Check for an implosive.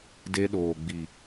present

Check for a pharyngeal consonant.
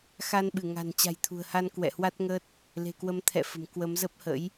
absent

